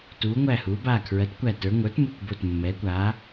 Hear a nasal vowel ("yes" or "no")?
no